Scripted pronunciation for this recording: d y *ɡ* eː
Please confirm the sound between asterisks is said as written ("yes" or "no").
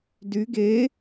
yes